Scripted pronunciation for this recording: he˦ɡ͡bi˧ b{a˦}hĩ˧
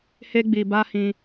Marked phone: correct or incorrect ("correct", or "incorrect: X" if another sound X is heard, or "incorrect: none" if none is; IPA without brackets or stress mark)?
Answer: correct